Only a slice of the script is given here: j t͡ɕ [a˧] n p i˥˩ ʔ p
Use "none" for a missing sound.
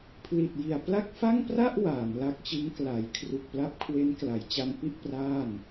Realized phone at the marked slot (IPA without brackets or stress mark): a˧